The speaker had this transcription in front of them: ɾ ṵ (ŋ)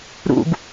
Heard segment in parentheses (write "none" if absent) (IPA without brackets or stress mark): ɡ